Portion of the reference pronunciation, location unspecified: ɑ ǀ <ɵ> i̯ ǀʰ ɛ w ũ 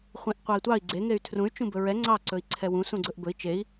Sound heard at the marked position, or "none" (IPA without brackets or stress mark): ɵ